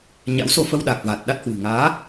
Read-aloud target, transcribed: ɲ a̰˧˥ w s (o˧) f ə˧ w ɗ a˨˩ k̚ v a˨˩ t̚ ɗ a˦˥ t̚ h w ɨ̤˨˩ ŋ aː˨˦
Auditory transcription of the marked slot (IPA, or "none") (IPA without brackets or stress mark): o˧